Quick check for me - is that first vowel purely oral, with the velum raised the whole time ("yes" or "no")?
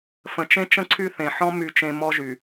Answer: no